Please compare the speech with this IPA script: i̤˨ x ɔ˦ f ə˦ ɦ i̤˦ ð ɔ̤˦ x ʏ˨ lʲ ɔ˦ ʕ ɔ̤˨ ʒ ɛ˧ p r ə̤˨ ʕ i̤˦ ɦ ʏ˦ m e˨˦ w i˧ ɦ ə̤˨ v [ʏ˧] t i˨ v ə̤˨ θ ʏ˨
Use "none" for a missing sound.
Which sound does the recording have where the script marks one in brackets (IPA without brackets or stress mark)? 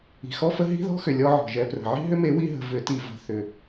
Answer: ʏ˨˦